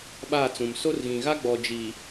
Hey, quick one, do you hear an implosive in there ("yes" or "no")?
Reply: yes